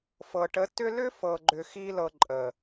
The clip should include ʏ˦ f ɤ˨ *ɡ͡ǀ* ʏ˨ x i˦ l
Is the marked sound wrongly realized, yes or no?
yes